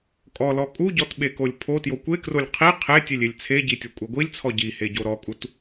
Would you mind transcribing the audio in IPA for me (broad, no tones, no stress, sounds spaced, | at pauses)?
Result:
kʼ ɔ l ɔ kʼ u ɟ ɔ t ɓ e k o lʲ pʰ o t j o kʷ e k r o lʲ qʰ i qʰ e tʲ e lʲ e lʲ t͡sʰ e ɟ i tʲ o kʷʼ e ɡʷ i lʲ t͡sʰ ɔ ɟ i h e ɟ o ɾ ɔ kʼ u t